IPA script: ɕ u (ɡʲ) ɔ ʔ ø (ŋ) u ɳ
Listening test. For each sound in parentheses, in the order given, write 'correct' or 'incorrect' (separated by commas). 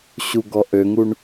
incorrect, correct